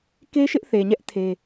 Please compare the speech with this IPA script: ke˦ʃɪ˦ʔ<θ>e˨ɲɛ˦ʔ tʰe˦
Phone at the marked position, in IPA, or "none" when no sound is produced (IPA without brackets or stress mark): θ